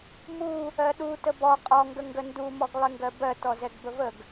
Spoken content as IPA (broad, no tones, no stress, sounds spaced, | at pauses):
m u | ɜ ɗ u t ə b ɔ qʼ ɔ ŋ ɡ ə ŋ ɡ ə n d u m ɔ ɡ lˠ ɪ ŋ ɡ ɜ b ɜ t ɔ z ɛ ɡ b ə v ə ɡ